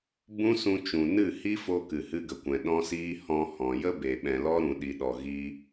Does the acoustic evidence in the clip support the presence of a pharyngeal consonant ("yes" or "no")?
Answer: no